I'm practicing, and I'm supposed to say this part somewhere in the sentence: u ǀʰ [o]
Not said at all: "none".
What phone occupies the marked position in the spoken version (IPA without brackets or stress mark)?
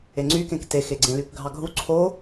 o